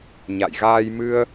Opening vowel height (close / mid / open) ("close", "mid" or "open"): open